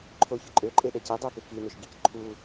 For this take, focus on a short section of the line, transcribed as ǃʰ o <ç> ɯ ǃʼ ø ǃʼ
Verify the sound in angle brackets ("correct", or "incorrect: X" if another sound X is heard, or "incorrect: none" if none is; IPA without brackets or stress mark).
correct